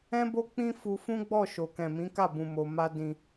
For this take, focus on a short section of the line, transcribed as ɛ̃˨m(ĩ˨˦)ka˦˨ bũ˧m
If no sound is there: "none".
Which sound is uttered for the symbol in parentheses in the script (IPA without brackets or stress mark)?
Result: ĩ˨˦